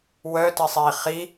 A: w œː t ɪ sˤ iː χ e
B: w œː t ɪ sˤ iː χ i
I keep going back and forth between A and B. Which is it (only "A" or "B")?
B